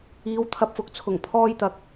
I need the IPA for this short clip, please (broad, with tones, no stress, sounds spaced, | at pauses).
iː˨˧ w t̪ʰ ɐ˧ p̚ f ʊ˨˥ k̚ t͡sʰ ʊ˨˩ ŋ pʰ ɔː˧ j t̪ ɐ˨ k̚